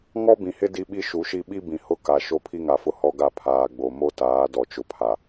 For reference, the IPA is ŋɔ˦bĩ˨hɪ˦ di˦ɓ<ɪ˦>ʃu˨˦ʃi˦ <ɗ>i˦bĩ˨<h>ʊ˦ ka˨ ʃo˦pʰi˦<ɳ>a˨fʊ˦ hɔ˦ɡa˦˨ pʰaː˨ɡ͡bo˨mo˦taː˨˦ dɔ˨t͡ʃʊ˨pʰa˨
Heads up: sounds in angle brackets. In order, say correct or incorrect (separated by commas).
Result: incorrect, incorrect, correct, incorrect